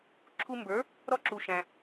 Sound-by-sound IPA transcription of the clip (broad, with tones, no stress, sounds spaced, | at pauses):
ǁʰ u˧ m b ə˞˩˥ | ɾ ɔ˥ ǁ u˩ ʃ æ̃˩